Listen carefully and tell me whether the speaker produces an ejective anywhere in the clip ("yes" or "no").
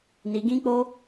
no